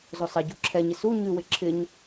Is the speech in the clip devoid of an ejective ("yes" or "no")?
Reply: yes